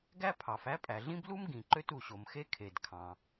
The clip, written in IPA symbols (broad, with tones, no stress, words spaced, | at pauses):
ɡæ˥pʰɑ˩f æ˥pʼæ˩ɮĩ˥b lu˥m ɡĩ˩ǃø˥t u˩ɕo˩mxe˥ kʰe˩dkʰɑ̃˩